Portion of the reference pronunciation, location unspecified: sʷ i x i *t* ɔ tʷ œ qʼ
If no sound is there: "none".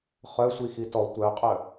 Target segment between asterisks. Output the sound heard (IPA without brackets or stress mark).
t